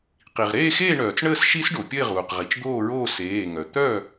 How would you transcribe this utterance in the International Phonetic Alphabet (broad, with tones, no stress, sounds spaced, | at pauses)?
q i˩ ʁ ɾ eː˥˨ x eː˥˨ ɳ œː˩ t͡s ɳ əː˥˨ s ʃ i˦˥ s ɖ o˩ pʲ ə˥˨ ɪ̯ ʁ uː˩ q ʁ i˩ t͡ʃ d̪ oː˥˨ ɹ oː˥˨ s eː˩˧˩ ŋ œ˩ t̪ œ˥˨